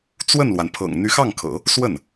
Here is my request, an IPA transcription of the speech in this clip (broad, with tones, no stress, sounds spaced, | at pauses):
t͡s w ə˥˩ n l w a˩ n pʰ ɤ̰˨˩ ŋ n̪ y˧˥ x ɑ˥˩ ŋ kʰ ɤ̰˨˩˦ | s w ə˥˩ n